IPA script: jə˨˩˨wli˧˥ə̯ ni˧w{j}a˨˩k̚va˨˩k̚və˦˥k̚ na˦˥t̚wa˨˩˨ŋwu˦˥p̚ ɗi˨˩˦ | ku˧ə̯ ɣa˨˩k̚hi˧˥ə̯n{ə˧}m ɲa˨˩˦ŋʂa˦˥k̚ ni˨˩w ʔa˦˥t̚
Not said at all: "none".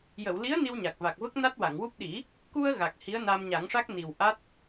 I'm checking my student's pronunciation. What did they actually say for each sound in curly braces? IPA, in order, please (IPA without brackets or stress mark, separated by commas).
ɲ, a˧